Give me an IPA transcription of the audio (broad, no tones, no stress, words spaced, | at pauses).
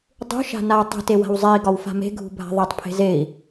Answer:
dˤṳ ʃa̤nau̯tˤṳte wa̤wzˤei̯ ɡɒwfa̤me̤ɡʱṳ bʱa̤ðˤetˤ pʰe̤zei̯